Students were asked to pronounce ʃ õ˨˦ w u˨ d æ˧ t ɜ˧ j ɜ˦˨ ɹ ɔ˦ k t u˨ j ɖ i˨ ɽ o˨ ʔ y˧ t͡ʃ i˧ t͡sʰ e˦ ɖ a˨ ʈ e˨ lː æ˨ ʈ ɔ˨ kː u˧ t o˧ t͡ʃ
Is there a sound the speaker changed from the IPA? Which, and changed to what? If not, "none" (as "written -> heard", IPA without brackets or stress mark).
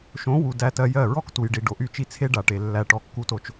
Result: ɽ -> ɖ